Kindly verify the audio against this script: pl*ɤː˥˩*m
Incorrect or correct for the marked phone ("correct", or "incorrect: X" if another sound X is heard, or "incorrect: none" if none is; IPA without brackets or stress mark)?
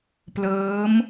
incorrect: ɤː˦˥